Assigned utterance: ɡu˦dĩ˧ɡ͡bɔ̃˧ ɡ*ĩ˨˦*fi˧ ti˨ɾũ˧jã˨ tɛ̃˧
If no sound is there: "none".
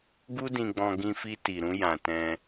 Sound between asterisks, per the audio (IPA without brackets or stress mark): ĩ˧